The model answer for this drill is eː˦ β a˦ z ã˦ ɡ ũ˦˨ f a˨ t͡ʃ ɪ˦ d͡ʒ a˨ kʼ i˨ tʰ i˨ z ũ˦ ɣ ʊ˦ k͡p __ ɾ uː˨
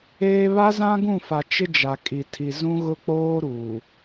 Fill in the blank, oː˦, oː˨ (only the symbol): oː˦